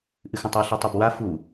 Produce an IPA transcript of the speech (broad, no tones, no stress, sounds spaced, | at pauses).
ʔ ɨ x ũ tˤ ʉ ɬ i tˤ u b w a f u